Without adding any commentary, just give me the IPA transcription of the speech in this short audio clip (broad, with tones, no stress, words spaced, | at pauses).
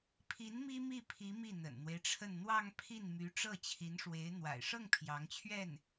pʰi˧˥n mi˥mi˥˩pʰi˧˥ mi˥˩n̪ə̰˨˩nn̪we˦ɪ̯ʈ͡ʂʰə˥˧n n̪wɑ˥˧ŋ pʰi˥˩nmy˧˥ ʈ͡ʂɤ˥˩t͡ɕʰi˧˥nʂwe˧˥ɪ̯ n̪wa̰˨˩ɪ̯ʂɤ˥˩ŋ pʰjɑ˧˥ŋt͡ɕʰɥɛ˥˩n